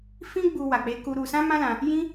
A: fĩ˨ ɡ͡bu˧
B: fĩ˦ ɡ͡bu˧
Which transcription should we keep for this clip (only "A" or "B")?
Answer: B